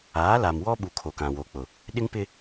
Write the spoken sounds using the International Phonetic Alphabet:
aː˨˦ l a˨ m w ɔ˦ ɓ u˨ kʰ o˨ k ã˨ w o˨ k͡p ʊ˨ | ɗ ɪ˦ ŋ p ɪ˦

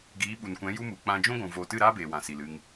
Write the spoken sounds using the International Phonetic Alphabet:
ɡ iː˨˦ ɓ u˨ n kʷ ɛ̃˨˦ j u˦ m u˨ k͡p ã˧ d͡ʒ ũ˦ ɡʷ ũ˨ v oː˨ t ɨ˦˨ ɾ aː˦ b eː˨ w ã˨ s i˨ l ɨ˧ ŋ

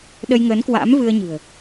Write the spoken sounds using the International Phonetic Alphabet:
ɗ ə˧ j ŋ əː˨˦ n k w a̰ː˧˥ m v ɨ˧ ə̯ ɲ ɨ̤˨˩ ə̯

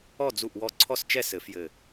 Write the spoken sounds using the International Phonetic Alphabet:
ɔ˥˧ d͡z u˥˧ ʔ w ɔ˥˧ ǀʰ ɔ˥˧ s t͡ʃ ɛ˥˧ s ɘ˨˩˦ f j ɘ˨˩

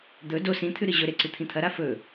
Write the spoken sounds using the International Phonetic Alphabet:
d̪ ɵ d o s ĩ t̪ʰ ʉ ɾ ɨ ʑ ɵ ɾ e ǀ ɨ t̪ʰ ĩ t̪ʰ ɐ ɾ a f ɵ

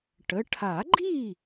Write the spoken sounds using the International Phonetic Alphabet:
ʈ ə˩˧˩ ʈʰ a˨˩˦ ɡ͡ǃ i˥˨

